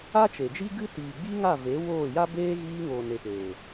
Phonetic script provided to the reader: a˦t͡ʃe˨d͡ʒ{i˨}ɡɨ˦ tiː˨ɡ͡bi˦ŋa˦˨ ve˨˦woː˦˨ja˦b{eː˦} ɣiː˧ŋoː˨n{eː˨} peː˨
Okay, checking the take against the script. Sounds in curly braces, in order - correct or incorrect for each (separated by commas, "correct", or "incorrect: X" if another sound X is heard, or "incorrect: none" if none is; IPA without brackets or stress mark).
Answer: incorrect: i˦, correct, incorrect: e˨